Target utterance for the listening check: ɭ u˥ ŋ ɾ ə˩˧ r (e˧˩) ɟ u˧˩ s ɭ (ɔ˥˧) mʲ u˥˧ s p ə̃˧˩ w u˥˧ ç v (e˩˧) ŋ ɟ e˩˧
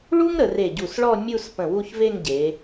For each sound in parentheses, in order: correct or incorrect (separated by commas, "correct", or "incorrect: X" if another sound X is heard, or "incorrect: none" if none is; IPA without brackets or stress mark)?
correct, correct, incorrect: e˥˧